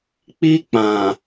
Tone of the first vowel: high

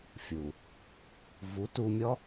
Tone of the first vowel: low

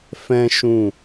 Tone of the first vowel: high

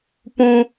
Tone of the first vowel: high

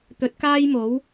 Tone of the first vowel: rising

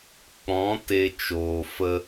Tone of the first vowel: rising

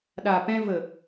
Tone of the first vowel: low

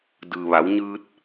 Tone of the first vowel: low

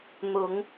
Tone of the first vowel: rising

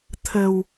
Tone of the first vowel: low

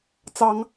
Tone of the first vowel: rising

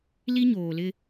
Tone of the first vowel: high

